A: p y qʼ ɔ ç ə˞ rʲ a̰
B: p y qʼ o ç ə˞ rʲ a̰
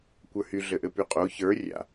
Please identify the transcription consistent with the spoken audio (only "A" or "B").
B